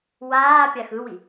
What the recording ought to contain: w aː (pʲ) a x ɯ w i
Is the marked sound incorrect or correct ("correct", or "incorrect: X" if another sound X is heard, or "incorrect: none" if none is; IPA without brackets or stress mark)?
correct